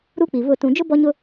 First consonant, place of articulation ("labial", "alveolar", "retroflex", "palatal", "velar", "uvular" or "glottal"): alveolar